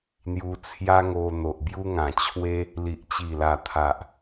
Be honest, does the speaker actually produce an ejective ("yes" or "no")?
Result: no